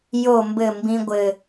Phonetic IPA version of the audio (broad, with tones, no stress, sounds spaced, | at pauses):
j o˨ m b ɘ˨ m b ĩ˦ ɡʷ ɘ˦